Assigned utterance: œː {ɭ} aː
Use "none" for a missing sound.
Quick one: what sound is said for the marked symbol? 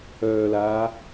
l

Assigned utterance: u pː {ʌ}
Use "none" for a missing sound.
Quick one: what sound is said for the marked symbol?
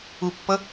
ʌ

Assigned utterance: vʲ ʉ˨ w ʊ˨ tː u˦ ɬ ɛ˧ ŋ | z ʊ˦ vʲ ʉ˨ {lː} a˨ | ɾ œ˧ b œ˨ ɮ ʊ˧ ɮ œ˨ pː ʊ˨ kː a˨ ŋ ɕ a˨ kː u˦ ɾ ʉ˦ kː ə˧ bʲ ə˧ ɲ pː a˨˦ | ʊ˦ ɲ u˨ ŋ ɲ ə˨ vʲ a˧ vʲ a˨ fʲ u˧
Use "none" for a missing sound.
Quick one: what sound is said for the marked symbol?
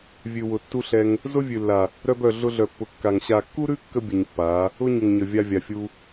lː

